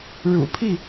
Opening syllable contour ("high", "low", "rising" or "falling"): low